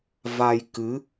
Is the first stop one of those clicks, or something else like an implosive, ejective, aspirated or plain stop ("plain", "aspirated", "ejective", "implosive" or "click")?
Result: plain